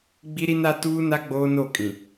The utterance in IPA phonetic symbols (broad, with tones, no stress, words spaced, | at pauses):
ɡ͡bi˦ɾi˦na˦ tuː˦na˦ ɡ͡boː˦no˦˨kʼĩ˨